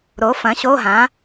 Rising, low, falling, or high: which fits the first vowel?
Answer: rising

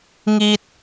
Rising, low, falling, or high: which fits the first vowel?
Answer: high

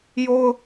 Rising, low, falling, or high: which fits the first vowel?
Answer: high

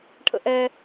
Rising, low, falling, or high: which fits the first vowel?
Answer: high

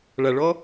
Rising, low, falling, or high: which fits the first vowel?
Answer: low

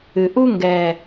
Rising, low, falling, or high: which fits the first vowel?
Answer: low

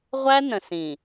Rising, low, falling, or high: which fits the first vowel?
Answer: high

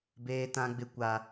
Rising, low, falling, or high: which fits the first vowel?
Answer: high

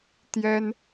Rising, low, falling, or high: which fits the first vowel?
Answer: high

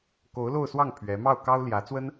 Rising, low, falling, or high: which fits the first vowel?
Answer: rising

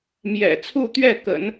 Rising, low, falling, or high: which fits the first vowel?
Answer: low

